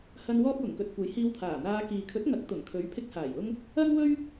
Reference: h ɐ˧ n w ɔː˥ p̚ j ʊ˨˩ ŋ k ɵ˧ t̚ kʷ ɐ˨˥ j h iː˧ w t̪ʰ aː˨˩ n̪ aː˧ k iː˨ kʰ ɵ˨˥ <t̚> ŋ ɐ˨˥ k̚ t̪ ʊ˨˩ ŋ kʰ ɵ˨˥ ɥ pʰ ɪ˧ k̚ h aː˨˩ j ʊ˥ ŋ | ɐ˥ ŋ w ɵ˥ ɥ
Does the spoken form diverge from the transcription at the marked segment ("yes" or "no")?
no